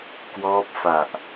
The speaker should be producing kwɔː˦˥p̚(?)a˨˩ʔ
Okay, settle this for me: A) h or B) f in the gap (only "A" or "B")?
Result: B